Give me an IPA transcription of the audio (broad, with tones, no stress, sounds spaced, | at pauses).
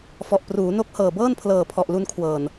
f ɔ˨˩ ʔ p r uː˩˦ n o˦˥ k̚ h ɤː˨˩ b ɤː˥˩ n pʰ l ɤː˨˩ pʰ ɔ˨˩ ʔ l u˧ n kʰ w ɤː˨˩ n